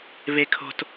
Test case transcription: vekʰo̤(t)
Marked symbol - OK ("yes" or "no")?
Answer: yes